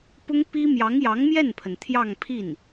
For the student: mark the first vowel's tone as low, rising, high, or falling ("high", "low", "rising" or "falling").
high